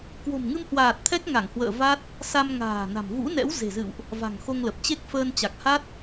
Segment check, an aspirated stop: present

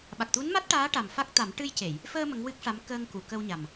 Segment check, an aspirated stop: absent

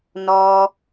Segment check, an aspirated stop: absent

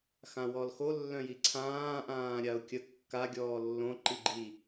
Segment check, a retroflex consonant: absent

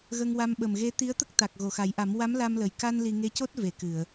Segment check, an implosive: present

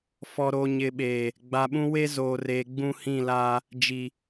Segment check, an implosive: present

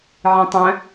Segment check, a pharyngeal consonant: present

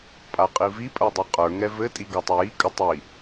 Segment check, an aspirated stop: absent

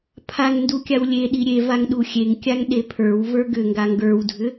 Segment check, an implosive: present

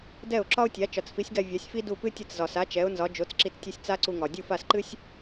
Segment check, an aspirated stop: absent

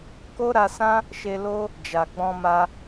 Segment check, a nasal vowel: present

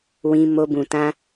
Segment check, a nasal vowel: present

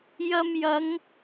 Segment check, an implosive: absent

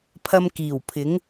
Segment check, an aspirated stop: present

